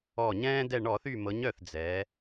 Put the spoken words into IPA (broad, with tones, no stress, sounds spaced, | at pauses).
ɔ˧˩ ɲ ɛ̃ː˦ d ɛ˧˩ ɳ ɔ˧˩˧ θ y˧˩ m ɤ˩˧ ɲ œ˧˩ θ d͡z ɛ˩˧